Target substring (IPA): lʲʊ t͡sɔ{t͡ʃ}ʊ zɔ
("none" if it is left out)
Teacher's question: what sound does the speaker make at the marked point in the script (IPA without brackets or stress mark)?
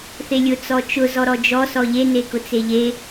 t͡ʃ